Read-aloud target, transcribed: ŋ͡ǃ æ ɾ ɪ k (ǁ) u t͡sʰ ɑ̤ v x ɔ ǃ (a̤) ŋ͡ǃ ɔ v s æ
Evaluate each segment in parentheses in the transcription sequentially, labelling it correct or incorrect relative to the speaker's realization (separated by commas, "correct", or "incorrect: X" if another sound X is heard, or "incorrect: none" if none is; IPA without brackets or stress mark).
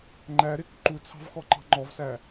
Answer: incorrect: ǃ, incorrect: ɑ̤